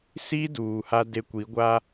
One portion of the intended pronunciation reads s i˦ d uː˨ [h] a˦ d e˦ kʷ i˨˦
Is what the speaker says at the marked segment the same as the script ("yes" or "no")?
yes